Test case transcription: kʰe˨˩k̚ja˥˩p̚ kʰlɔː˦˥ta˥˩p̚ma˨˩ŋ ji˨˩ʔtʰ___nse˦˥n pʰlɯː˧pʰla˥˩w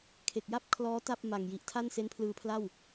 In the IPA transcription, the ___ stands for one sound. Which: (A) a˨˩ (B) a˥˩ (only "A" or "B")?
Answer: B